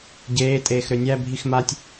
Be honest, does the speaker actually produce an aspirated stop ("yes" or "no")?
no